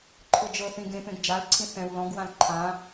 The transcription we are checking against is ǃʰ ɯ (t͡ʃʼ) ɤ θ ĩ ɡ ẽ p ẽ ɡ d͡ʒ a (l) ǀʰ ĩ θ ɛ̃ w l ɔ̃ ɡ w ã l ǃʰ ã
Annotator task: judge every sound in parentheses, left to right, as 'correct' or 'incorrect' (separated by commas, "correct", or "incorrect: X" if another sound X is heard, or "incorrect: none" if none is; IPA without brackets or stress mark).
incorrect: d͡ʒ, correct